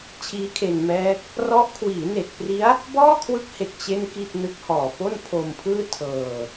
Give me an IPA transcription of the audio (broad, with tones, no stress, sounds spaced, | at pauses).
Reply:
t͡ɕʰ iː˦˥ kʰ e˧ n m ɛː˦˥ k̚ | r ɔ˦˥ ʔ kʰ w iː˩˦ n e˨˩ k̚ p r i˦˥ a̯ | b ɔː˥˩ kʰ w ɯ˦˥ k̚ h e˨˩ k̚ t͡ɕ e˥˩ n k i˥˩ t̚ n ɯ˦˥ k̚ h ɔː˨˩ p o˥˩ n pʰ o˧ m pʰ ɯː˥˩ tʰ ɤː˧